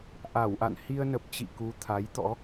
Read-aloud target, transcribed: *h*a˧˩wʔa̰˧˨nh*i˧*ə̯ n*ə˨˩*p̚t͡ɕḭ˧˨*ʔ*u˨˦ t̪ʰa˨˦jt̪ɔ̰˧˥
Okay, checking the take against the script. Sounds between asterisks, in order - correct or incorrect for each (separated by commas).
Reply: incorrect, correct, correct, incorrect